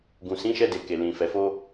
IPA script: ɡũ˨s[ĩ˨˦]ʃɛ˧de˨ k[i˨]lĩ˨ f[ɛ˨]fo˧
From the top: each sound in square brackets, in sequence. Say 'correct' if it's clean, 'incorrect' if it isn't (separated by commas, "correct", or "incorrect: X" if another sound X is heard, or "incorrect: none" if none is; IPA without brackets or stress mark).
correct, incorrect: e˨, correct